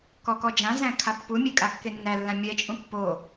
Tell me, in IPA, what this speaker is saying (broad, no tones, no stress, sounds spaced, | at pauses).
k ɔ k ɔ d͡ʒ ã z æ̃ kʰ a pː u mʲ e kʼ a kː e nː æ lː ã mʲ ɛ t͡ʃʼ ũ pː o